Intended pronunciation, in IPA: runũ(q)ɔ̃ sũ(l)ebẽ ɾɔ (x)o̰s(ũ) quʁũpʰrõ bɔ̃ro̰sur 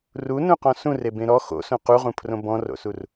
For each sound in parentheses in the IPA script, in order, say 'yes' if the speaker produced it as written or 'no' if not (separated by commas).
yes, no, yes, no